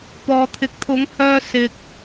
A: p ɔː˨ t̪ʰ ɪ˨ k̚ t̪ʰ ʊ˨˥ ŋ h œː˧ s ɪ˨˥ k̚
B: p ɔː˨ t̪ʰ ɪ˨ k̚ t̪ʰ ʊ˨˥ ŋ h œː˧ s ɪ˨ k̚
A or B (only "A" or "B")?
B